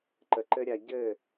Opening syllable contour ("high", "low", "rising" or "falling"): low